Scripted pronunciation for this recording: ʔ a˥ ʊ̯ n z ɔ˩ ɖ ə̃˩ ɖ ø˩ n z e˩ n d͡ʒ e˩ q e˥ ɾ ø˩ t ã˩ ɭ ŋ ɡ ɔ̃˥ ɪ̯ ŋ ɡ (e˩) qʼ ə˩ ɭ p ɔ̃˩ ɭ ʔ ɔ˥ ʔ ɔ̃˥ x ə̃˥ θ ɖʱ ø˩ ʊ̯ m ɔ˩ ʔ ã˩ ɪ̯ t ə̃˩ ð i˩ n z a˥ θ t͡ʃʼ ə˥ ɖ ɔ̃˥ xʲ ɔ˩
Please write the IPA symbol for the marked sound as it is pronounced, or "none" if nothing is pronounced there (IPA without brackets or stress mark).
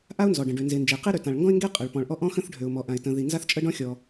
e˥